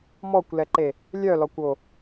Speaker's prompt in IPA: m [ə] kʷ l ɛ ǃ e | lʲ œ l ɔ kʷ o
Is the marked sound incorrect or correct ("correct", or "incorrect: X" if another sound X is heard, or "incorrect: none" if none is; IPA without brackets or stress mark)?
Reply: incorrect: ɔ